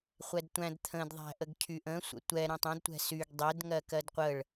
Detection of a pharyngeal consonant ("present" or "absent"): absent